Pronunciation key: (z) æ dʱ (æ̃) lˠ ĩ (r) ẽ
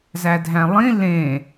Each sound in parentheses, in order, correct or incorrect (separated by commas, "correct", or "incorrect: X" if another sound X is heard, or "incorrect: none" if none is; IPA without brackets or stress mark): correct, correct, incorrect: l